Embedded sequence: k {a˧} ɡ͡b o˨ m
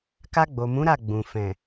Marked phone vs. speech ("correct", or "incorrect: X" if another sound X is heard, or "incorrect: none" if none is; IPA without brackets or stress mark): correct